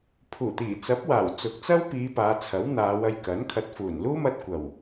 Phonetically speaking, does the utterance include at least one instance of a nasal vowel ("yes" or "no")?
no